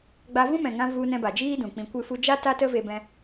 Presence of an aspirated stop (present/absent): absent